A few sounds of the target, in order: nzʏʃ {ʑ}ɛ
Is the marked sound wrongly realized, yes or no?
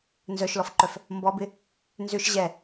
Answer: no